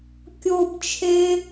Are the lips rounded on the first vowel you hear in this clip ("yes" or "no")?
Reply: yes